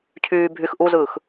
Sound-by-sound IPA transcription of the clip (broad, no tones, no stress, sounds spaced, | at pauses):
cʰ yː bʱ y x ʔ u z ɯː x